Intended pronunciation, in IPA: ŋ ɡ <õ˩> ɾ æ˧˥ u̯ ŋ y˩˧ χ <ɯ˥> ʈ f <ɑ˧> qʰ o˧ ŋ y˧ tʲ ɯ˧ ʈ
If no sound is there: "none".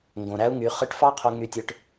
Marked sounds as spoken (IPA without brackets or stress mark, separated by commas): õ˩, ɯ˧˥, ɑ˥